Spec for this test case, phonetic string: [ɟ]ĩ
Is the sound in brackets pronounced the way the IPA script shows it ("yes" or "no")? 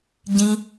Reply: yes